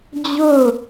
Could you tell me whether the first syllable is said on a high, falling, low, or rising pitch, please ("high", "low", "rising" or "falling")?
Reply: falling